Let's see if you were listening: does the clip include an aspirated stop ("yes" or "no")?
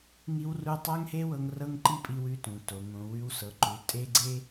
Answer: no